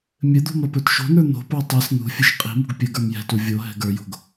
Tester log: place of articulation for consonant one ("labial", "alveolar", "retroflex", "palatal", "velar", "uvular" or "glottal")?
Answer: labial